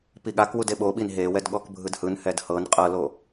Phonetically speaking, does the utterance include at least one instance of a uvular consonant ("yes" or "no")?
yes